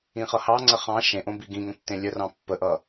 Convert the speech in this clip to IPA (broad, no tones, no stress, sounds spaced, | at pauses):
ĩ χ ʌ h ɑ ŋ͡ǀ ə χ ɑ̃ ʃ ẽ ʔ õ b i ɡ ĩ ŋ ə̃ tː ẽ lʲ ə r ɑ̃ pː ə ʔ ʌ